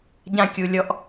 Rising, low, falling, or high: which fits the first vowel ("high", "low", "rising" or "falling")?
high